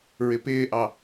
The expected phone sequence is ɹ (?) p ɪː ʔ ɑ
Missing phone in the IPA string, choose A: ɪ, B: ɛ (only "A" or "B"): A